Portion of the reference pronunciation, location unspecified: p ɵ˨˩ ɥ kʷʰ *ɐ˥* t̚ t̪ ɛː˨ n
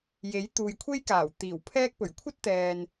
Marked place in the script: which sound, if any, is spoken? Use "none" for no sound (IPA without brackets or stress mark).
ɐ˥